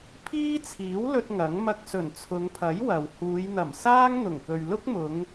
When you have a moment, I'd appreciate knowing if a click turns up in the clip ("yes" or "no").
no